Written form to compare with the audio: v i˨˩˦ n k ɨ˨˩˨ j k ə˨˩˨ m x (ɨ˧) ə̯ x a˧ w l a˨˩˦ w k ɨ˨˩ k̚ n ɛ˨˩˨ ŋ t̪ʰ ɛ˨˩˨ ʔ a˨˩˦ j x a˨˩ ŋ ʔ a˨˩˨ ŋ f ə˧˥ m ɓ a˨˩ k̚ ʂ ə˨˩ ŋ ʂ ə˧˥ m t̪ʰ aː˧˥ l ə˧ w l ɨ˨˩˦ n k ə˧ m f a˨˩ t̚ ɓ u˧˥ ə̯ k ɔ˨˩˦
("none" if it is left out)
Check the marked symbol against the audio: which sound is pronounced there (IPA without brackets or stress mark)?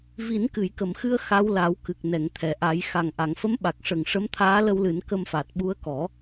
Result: ɨ˧